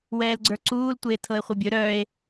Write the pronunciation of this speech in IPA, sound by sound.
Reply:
wɛːlɡ͡ǀə˞ǀuːl tʷeːtʰɤe̯χʷɤbʲɵ ɾœe̯

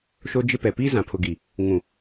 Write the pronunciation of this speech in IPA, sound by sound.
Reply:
ʃo˦d͡ʒɪ˦ pɛ˨piː˦ zã˨pʰʊ˨ɡi˨ | ŋũ˨

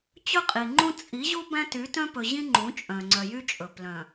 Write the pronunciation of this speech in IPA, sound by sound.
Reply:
t͡ɕɵ˦qʼi˨ŋ͡ǃũ˦ t͡sʼi˨˦ʑu˦ bæ̃˦ ty˨˦tœ̃˦pɵ˨ʑĩ˦ ŋ͡ǃũ˨˦ t͡ʃʼœ̃˨ŋ͡ǀœ˨ jy˦t͡ʃʼɵ˨ plœ̃˨

